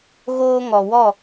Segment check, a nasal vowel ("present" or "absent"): absent